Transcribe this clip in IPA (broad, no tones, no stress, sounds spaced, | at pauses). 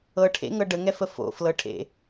ɤ ʈʰ ḛ ŋ ɤ ɖ ə ŋ ɛ f ə f o̰ f l ɤ ʈʰ ḛ